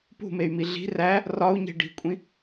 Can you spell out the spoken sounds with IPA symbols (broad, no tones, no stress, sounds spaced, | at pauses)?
p ṳ m e y̯ m i ɮ i̤ r æ | r ɒ u̯ ɲ e̤ ɖ i̤ kʷʼ ĩ